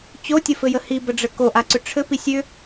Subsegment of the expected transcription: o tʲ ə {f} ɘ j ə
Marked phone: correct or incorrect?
correct